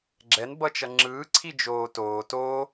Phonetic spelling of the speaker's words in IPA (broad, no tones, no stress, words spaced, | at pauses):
ɡ͡ǁɛnbʌt͡ʃʌ ŋ͡ǁɯːǀʰid͡ʒoː toː to